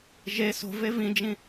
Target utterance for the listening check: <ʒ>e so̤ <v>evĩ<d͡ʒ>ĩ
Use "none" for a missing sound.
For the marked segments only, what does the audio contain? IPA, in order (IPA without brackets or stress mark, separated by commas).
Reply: ʒ, v, d͡ʒ